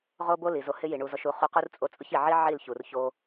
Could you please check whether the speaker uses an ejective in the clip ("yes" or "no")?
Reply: yes